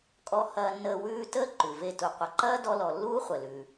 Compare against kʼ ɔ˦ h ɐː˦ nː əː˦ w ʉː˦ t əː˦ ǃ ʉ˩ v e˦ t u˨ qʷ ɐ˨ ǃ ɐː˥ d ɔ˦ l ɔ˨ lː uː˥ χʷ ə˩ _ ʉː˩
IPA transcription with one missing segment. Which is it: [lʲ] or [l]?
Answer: l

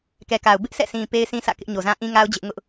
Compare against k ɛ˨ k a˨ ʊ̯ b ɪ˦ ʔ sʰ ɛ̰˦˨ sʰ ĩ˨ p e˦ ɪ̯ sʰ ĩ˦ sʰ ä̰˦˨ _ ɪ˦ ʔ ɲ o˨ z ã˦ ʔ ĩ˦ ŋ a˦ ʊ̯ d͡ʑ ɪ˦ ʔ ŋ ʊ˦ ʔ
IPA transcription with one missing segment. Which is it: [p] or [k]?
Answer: k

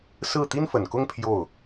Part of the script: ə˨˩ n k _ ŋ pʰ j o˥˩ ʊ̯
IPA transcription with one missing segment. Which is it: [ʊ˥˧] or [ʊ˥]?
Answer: ʊ˥˧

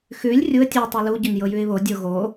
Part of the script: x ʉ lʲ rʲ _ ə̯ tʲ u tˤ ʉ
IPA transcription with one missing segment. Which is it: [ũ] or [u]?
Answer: u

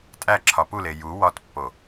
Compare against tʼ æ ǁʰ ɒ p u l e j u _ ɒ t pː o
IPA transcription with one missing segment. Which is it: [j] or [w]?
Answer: w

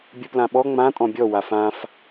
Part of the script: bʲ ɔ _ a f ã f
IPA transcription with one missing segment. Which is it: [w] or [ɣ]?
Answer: w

